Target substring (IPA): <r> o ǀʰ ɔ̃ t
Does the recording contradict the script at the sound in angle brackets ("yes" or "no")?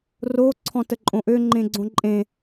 no